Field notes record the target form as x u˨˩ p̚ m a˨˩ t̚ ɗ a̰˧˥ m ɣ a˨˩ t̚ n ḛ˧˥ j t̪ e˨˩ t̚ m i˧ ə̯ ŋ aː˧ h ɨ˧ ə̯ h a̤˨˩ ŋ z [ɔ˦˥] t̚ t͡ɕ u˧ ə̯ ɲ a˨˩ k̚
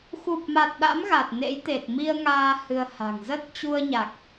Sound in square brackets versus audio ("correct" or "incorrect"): incorrect